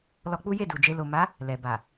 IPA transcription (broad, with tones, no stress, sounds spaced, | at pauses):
l ɔ˧ k͡p u˦ j e˦˨ d u˨ d͡ʒ e˧ l o˨ m a˨˦ | l ɛ˨ b a˨